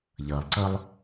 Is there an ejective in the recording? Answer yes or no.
no